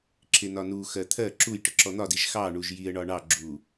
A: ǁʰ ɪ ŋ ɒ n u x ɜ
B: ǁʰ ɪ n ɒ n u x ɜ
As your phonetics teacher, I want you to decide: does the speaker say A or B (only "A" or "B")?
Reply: B